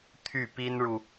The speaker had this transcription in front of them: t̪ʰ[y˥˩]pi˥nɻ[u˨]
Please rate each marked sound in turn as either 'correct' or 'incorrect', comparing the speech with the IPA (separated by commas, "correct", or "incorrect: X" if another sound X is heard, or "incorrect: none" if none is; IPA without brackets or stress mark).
correct, correct